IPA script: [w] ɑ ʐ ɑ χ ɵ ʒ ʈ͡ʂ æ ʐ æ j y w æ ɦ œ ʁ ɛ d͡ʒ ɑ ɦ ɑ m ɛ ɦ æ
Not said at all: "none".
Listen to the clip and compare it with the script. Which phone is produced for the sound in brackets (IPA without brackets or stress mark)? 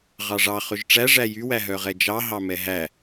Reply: ʁ